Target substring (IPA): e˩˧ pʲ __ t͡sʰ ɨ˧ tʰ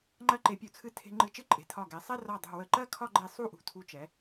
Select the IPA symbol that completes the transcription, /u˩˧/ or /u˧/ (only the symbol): u˩˧